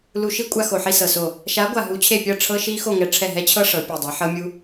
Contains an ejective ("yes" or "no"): yes